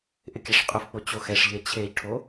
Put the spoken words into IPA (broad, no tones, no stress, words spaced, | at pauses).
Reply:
ʔɪkʲaʂqʼʊfk͡po t͡ɕoxɛʂʎe t͡ɕʰeʎʈʰo